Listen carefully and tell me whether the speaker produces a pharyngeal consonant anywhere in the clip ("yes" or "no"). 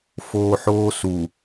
yes